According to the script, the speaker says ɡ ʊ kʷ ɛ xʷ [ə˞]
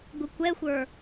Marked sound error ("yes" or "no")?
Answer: no